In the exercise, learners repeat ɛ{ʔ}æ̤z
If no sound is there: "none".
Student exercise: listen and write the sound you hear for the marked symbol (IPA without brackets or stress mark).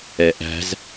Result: ʔ